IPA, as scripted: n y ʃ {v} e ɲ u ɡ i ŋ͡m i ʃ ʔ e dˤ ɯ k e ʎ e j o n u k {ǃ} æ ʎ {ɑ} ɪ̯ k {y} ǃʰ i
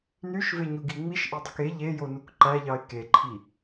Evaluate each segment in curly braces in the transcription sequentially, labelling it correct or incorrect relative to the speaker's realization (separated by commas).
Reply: correct, correct, correct, incorrect